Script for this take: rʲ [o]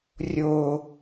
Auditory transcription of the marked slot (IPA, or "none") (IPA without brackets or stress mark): o